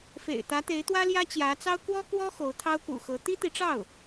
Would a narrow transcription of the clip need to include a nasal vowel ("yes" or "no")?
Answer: no